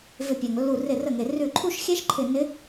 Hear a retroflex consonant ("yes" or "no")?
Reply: no